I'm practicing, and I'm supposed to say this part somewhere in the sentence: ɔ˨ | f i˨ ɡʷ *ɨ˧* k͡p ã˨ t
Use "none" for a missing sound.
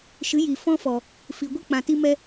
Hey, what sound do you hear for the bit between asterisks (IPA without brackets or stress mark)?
ɨ˦